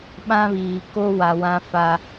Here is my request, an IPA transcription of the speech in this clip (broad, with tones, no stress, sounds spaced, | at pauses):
ɓ ã˦ β iː˨ k o˦ w a˨ w ã˦ f a˦